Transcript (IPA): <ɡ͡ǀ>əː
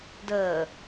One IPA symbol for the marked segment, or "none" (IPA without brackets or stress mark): d